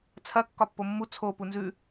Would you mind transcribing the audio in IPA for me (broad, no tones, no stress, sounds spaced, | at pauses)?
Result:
t͡sʰ ɐ kː ɒ pː o mː u t͡sʰ o p u n z ʉ